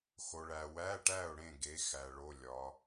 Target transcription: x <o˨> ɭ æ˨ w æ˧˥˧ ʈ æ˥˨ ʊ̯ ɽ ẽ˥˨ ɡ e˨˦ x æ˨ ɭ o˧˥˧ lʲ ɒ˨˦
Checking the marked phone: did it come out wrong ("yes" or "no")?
no